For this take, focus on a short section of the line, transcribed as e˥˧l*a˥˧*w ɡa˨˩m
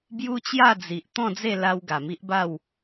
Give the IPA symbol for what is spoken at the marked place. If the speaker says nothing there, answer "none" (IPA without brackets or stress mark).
a˧